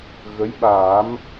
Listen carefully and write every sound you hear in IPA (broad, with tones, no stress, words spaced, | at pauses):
ɣə˧˥j ɓaː˨˩˦m